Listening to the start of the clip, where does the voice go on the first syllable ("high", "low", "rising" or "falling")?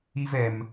high